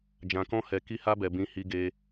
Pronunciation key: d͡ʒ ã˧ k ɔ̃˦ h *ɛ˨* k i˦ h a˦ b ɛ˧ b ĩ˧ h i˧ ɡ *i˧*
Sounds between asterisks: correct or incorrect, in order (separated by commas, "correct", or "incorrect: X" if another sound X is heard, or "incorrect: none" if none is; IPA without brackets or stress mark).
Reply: incorrect: ɛ˧, incorrect: e˧